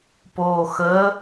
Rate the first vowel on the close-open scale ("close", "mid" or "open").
mid